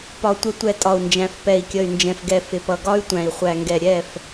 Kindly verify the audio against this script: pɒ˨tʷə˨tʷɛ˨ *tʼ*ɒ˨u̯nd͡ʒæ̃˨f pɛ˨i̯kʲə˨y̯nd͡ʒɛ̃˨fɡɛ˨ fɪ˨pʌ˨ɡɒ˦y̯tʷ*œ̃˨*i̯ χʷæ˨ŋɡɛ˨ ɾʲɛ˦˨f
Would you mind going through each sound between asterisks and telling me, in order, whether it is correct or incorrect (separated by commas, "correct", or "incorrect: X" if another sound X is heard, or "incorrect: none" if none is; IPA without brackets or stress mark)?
correct, incorrect: æ̃˨